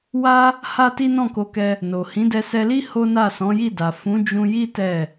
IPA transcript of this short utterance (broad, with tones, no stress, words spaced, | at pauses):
wa˦ | ha˦ti˦ nɔ̃˦˨ko˧kɛ˧ | no˨ hĩ˨˦dɛ˧sɛ˧li˦ ho˦na˦˨ sɔ̃˨˦ji˦˨da˨ fũ˨˦d͡ʒũ˧ji˦ tɛ˦˨